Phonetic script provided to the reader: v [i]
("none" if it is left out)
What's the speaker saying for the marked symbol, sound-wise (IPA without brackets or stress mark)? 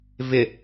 ɪ